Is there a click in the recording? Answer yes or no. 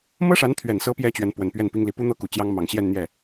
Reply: no